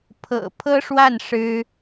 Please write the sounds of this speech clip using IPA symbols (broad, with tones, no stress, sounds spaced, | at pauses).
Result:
pʰ ɤ̰˨˩ pʰ ɤ˥ ʂ w a˥˩ n ʂ ɻ̩˥